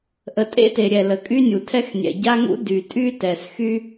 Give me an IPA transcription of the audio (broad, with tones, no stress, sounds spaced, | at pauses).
ʔ ə˩ tʼ ḛ˥ t e˩ ɾʲ ɛ˩ l ə˩ kʼ y˥ nʲ u˩ tʰ ɛ˥ x nʲ ɛ̰˩ ɟ a˥ ŋ ṵ˥ d y˩ tʼ y˥ t ɛ˩ s x y˥